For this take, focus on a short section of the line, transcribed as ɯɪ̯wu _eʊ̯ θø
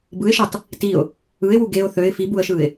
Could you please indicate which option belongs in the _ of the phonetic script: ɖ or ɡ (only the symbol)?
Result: ɡ